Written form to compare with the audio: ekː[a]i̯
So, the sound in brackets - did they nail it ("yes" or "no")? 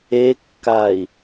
yes